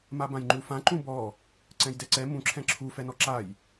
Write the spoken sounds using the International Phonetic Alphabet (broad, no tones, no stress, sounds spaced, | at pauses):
m a b ã j ŋ͡ǃ u f ã ǃ ũ b ɔ | ǀ ɛ̃ j d ɛ ǀ ɛ m ũ ǁʰ ɛ̃ ǁʰ u f ɛ n ɔ ǁ a j